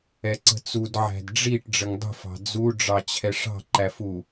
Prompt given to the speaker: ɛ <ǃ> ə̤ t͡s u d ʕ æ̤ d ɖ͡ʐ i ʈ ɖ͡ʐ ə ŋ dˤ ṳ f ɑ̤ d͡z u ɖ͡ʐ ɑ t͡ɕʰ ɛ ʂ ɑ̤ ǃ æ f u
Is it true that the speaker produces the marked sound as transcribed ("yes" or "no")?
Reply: no